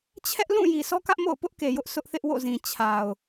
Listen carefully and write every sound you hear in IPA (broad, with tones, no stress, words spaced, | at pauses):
t͡ɕʰɛ˦ʔlũ˦˨ ji˨sɔ˦kä˦ʔ mo̰˦˨ʊ̯pʊ˦ʔke˨jʊ˦ʔ sʰʊ˦ʔθɪ˦ʔwo̰˦˨zĩ˨ t͡ɕʰa˨ʊ̯